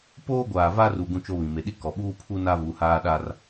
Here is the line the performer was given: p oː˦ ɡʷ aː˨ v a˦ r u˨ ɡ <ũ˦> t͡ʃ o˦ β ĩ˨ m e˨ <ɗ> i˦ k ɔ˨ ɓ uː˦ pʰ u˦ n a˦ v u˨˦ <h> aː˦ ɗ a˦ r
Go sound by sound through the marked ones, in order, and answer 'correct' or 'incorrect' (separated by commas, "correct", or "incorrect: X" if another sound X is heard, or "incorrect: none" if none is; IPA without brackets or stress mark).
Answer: correct, correct, correct